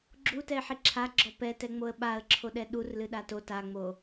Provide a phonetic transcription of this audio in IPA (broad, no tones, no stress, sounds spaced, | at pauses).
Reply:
ɡ͡ǁ u t ɛ ɪ̯ ħ i ǁʰ a ɡ͡ǁ ɔ p ɛ t ɛ ŋ͡m o ə̯ ɓ a ə̯ ǁʰ o ɗ ɛ ɗ u r l ɨ ɗ a t o t a ŋ͡m o